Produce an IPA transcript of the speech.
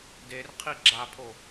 d e r qʰ i ɡ͡ǁ a pʰ o

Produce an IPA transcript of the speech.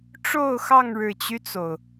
ʈ͡ʂ o˥˨ ʊ̯ x ɑ˥˨ ŋ ɻ ɻ̩˨˩ t͡ɕ y˦ t͡s o˩ ʊ̯

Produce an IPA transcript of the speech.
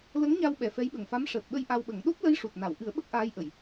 l ə˧˥ ŋ ɲ a˧ w ɓ ɛ˨˩ f ɛ˧˥ j ɓ ə˨˩ ŋ f a˧˥ m ʂ əː˨˩ t̚ ɓ ə˧ j ʔ a˧ w ɓ ə˨˩˦ ŋ ɗ o˦˥ p̚ l ə˧˥ j ʂ u˨˩ t̚ n a˨˩˨ w ʔ ɨ˨˩˦ ə̯ ɓ ə˦˥ k̚ ʔ aː˧˥ j ʔ ə˨˩˨ j

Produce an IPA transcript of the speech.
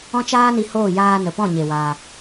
ɔ̃˦ t͡ʃ aː˦ n i˧ h oː˦˨ j aː˧ n ə˨ p ɔ̃˦˨ ɲ e˨ w a˧

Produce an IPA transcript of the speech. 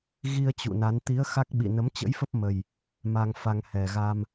ɣ i˧ ə̯ t͡ɕ ṵ˧˨ n a˨˦ n t̪ i˨˦ ə̯ x a˦˥ k̚ ɓ ḭ˧˨ n ə˨˦ m t͡ɕ ə̰˧˥ j f ə˦˥ p̚ m ə˨˩ j | m a˧ ŋ f a˧ ŋ h ɛ˨˩ ɣ a˧ m

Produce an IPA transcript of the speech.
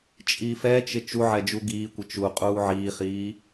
t͡ʃʼ i f ɛ t͡ʃ ɪ t͡ʃ u ʕ ɛ d͡ʒ u ɡ iː kʷ ɪ t͡ʃ u qʼ uː ʕ iː χ iː

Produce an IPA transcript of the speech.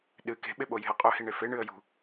ɗ ɨ k e̤ ɓ e ɓ o j e̤ ə̯ qʼ ɵ h i ɳ e f e ɳ ɨ ə̯ j ṳ

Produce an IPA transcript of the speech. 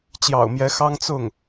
t͡ɕ j ɑ̰˨˩ ʊ̯ m j ɛ˧˥ x ɑ˥ ŋ t͡s ʊ˥˩ ŋ

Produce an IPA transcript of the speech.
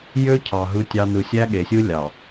j ø˦ cʰ ɑ˨ ɦ ɯ˦ tʲ ɑ˦ n ɯ˨ sʲ æ˦ ɠ e˨ sʲ ɯ˦ lʲ ɑ˨

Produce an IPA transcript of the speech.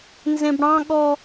n z ẽ b ɽ ɑ̃ ɠ ɔ

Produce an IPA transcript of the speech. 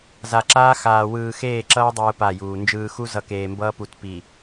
z a˨ ǁ aː˦ x aː˨ w ɯː˨ x eː˦˨ ǁ ʌː˦ dˤ ɯː˨ p a˦˨ j uː˨ n d͡ʒ ɯː˨ x u˦ z ʌ˨ k eː˨ m b ʌː˦ p u˨ t p i˨

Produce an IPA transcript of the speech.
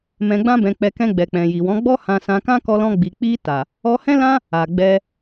m ɛ̃˧ ɡ͡b ã˦ b ɛ̃˧ k͡p ɛ˧ k ɛ̃˧ ɡ͡b ɛ˨ k͡p ɛ̃˨ j i˨ w ɔ̃˨˦ ɡ͡b ɔ˦ h ã˧ s ã˧ k ã˦ k ɔ˧ l ɔ̃˧ ɡ͡b i˨ k͡p i˧ t a˨ | ɔ˧ h ɛ̃˦ l ã˦ | a˨ ɡ͡b ɛ˧

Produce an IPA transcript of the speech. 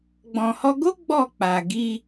ɡ͡b ɔ̃˨ h ɔ˧ ɡ o˦ ɡ͡b ɔ˦˨ k͡p a˨ ɡ i˧

